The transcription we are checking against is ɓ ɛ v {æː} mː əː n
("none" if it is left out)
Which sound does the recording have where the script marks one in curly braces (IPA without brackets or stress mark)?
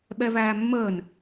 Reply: æː